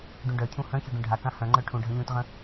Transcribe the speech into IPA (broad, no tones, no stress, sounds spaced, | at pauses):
ɖ ũ ɖ œ cʰ ũ h œ̃ ç œ ɖ ũ ɖʱ a k ã h œ̃ ŋ͡ǃ œ ʈʰ ũ ɖʱ ə̃ ʎ ũ t ʁ ə̃